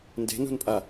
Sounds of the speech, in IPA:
n d e̤ n ṳ n pʼ a

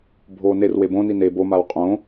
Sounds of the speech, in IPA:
bʱ oː n e r w e b õ n i n e b o m a w qʼ õ

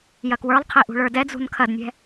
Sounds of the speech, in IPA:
j ɐ k w ə˞ lˠ qʰ i ʔ ṳ ɭ ə˞ d ɛ d͡z ṳ n kʰ ɐ d nʲ ɛ̤

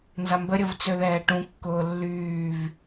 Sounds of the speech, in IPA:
n z a m b ə ɾʲ ə v t͡s ø ð ɛː ʈ ũ kː ʊː lː yː v

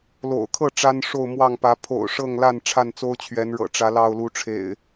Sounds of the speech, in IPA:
l o̰˨˩ ʊ̯ kʰ ɤ˥˨ ʈ͡ʂ a˦ n ʂ o˥˨ ʊ̯ m w ɑ˥˨ ŋ p ä˨˦ pʰ o̰˨˩ ʊ̯ ʂ ɤ˥˨ ŋ l a˥˨ n ʈ͡ʂʰ a˥˨ n t͡s o˦ ʊ̯ t͡ɕʰ ɥ ɛ˨˦ n ɻ ɤ̰˨˩ ʈ͡ʂ ä˨˦ l ɑ˥˨ ʊ̯ l u˨˦ ʈ͡ʂʰ ḛ˨˩ ɪ̯

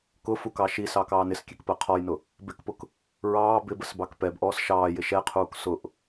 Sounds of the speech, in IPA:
k ʊ f u k ɑ ʃ i s ɑ k ɑː n ɪ s kʲ ɛ k p ɜ qʰ ɔ j n ʊ | b ɪ k p ʊ k | ɹ ɑː b ɪ b ə s b ɑ k p ɛ b ʔ ɔː s ʃ ɑː j ɪ ʃ ɛ qʰ uː k s ʊ ʔ

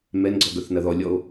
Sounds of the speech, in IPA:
m ɛ n ɡ͡ǀ ɔ ɡ œ θ n ɐ ð ɔ lʲ ɔ o̯

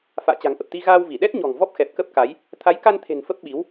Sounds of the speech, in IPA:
f a̰ː˧˨ t͡ɕ a̤˨˩ ŋ ʔ ə˨˩ p̚ t̪ i˧ ɣ aː˧ w v i˧˩ ɗ ɛ˦˥ t̚ ɲ ɔ̤˨˩ ŋ v ɔ˦˥ p̚ x ɛ˨˩ p̚ k ə˦˥ p̚ k a˨˦ j | t̪ʰ a˨˦ j k a˧ n t̪ʰ e̤˨˩ n f ə˦˥ p̚ ɓ i˨˦ w

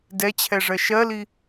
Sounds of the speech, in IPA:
d ɛ t͡ɕʰ ɛ ʐ ɜ ʃ ɜ l i

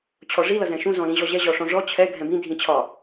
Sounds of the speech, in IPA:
t͡ɕʰ ɔ ʐ i l ʌ z ɛ̃ ʃ ũ z ɔ̃ l ĩ ʑ ɔ ʑ ɛ ʑ ɔ ʂ ɔ̃ ʐ ɔ t͡ɕʰ ɛ ɡʱ ɛ̃ b ĩ dʱ ĩ t͡ɕʰ ɒ

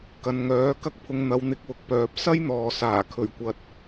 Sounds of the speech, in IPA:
k ɐ˨ n ŋ œː˨˥ k ɐ˥ k̚ pʰ ʊ˧ ŋ n̪ ɐ˨˧ w n̪ ɪ˨˥ k̚ w ʊ˨ k̚ p œː˨ p̚ s ɐ˥ j n̪ ɔː˨ s aː˨˩ kʰ ɵ˨˩ ɥ kʷ ɐ˨ t̚

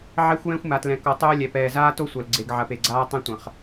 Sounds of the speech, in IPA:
ʕ ɛ˦ xʷ j ɛ̃˦ xʷ m a˨ t l ɛ̃˨ k ɔ˨ tˤ oː˦ lʲ ɛ˨ p ɛː˨ z aː˦ t o˦ sʷ ɐ˨ l ɡ͡ǀ e˨ ɡ ʕ ɐ˨ p e˨ ɡ͡ǀ aː˦ tˤ ɛ̃˦ tʷ ɐ̃˨ χ

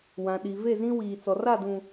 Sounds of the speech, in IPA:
w ã˨ ɗ i˨ v e˦˨ z ĩ˦ w iː˨ t͡s ɔ˨ r a˦˨ d ũ˨

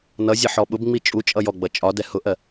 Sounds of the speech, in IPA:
n ʌ zʲ ʌ ħ ɔ ɓ ʊ b ŋ͡m i t͡ʃʼ u t͡ʃʼ ʌ j ɔ ɡ͡b ʌ t͡ʃʼ ɒ d ɛ h ʊ ʔ ɜ

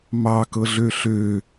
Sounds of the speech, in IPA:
m ɑ k ɤ ɮ ø ɬ ø

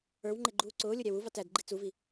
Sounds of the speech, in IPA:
ə˞ w ŋ͡ǃ ɪ ɡ͡ǃ uː ǀ ʊː lʲ ʊ ɾʲ æ w u v ɑ t æ d ɡ͡ǃ i t͡s u v i

